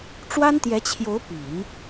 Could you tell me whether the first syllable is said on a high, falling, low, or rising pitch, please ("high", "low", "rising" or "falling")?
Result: high